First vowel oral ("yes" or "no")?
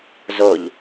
yes